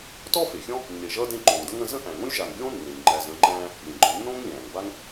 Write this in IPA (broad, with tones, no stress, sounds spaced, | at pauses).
t ɔ˥ f e˩ xʲ ɔ̃˥ | nː e˨ ʒ ʌː˥ d ẽ˦ ǃ o˩ ŋ d ə˥ ŋ ə̃˦ z ə̃˥ ʔ æ̃˩ ŋ õ˥ lʲ ʒ a˨ ŋ ɡʲ õː˥ nː ẽ˩ lʲ ŋ͡ǃ æ˨ z ə̃˦ ŋ͡ǃ æ̃ː˥ | lʲ ə̃˩ ɡ͡ǃ ɔ̃˨ nː õː˥ ŋ lʲ æ̃ː˩ ŋ b a˥ ŋ